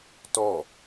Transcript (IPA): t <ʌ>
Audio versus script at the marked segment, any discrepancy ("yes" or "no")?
yes